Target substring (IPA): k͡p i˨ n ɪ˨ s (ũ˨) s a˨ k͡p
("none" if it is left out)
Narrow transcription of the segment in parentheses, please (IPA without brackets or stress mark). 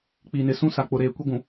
ũ˦